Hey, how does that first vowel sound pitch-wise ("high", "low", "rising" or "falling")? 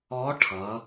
rising